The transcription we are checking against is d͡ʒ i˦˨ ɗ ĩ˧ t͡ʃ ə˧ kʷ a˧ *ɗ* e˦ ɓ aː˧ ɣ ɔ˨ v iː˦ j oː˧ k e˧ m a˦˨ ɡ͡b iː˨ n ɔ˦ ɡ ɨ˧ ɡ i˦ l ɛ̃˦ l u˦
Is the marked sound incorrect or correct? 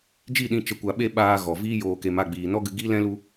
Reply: incorrect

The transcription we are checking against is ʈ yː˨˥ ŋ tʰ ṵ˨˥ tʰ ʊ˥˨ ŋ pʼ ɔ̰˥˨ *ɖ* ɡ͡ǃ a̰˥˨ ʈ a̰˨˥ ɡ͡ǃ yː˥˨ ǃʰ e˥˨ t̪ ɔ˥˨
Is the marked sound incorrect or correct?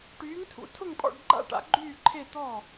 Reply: correct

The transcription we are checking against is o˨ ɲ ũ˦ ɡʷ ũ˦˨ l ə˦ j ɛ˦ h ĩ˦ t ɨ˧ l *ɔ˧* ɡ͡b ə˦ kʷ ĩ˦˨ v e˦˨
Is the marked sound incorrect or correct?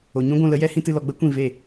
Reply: correct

